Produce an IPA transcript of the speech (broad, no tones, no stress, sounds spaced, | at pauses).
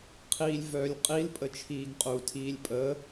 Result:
qʰ iː lʲ v œː lʲ qʼ i l pʼ ə t͡ʃʰ iː ɡ qʼ u tʰ iː lʲ pʼ ə